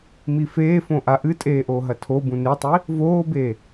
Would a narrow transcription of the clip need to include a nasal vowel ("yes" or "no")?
yes